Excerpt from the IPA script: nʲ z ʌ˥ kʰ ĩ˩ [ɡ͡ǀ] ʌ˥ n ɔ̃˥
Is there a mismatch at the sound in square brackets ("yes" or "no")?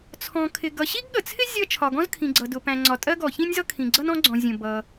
no